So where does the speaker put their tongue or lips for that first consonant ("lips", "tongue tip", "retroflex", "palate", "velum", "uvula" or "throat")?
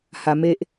throat